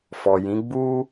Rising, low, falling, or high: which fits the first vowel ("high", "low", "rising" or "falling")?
low